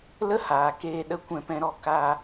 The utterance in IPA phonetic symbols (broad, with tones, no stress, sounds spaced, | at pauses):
l ə˦ h aː˨ k eː˧ ɗ ə˧ kʷ ɛ̃˧ p ɛ̃˧ ɾ ɔ˧ k aː˧